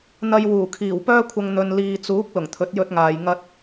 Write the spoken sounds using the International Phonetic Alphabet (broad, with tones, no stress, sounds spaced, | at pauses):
n̪ ɐ˧ j w uː˨˩ kʰ iː˨˩ w p œː˥ kʷʰ ɐ˧ ŋ n̪ ɵ˨ n l iː˨ t͡s uː˨˥ k̚ l ʊ˨˩ ŋ t̪ʰ ɵ˨˥ t̚ j ɵ˧ t̚ ŋ aː˨ j ŋ ɐ˧ t̚